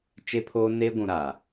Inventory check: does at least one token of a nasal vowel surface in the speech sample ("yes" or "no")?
yes